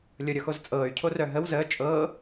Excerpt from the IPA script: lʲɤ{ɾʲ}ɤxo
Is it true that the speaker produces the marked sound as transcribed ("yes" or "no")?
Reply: yes